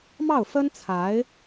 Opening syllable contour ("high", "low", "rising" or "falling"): falling